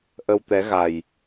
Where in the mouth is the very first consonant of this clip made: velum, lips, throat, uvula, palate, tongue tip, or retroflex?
throat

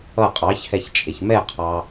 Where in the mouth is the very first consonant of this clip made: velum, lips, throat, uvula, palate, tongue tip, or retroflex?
uvula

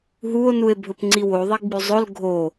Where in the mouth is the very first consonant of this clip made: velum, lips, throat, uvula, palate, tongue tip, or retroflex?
throat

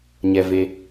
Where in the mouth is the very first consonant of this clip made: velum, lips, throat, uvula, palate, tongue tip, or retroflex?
palate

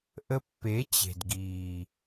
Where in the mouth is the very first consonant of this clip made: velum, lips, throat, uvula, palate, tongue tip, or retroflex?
throat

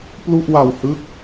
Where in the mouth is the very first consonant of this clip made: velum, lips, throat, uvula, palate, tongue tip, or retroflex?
lips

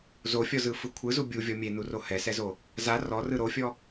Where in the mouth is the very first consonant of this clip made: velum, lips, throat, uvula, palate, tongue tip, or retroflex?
tongue tip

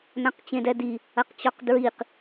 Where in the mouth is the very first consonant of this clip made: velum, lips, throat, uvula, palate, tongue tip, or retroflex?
tongue tip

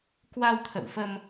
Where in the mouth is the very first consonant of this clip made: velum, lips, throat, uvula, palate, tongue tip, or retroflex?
velum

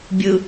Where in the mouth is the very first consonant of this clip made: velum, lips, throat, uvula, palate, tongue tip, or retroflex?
lips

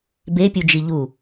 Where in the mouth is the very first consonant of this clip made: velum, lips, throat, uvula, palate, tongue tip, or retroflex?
lips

